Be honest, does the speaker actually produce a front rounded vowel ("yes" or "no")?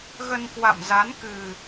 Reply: no